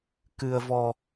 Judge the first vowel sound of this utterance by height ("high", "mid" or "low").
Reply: high